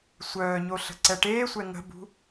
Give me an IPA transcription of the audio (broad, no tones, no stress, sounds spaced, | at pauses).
sʷ œː ɲ o ɬ ə̤ ǀ ɛ ʈ eː sʷ ɛ ŋ ə̤ b ṳ